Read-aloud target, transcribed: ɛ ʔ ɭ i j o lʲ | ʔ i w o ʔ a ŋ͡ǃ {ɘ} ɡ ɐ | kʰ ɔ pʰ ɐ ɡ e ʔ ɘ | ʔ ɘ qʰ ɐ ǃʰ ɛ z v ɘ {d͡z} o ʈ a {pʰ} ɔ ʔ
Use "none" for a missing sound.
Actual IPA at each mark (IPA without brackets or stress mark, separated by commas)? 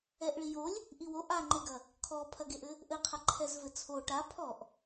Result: e, t͡sʰ, pʰ